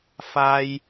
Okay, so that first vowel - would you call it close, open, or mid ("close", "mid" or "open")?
open